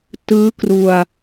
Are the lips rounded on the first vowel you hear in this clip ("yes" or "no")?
no